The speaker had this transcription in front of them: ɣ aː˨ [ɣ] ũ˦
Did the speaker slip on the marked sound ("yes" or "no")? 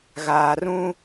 yes